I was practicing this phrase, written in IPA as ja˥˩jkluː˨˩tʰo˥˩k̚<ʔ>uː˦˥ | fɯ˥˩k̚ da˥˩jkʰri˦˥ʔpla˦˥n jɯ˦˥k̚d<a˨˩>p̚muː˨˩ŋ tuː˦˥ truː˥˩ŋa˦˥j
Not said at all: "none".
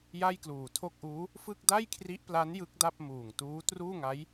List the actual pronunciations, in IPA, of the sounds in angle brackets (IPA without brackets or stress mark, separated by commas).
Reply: ʔ, a˥˩